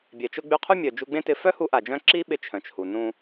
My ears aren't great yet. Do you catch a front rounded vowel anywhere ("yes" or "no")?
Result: yes